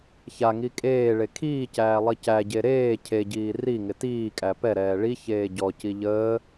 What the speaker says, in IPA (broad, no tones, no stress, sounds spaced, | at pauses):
ç a ŋ i kʼ eː ɭ e kʰ iː c æː lˠ i c æ ɟ e ɾ eː cʰ e ɟ iː r i ŋ ɪ t iː kʼ æ p ɛ ɾ ɛː ɭ i ç eː ɟ ɔ c i ʎ əː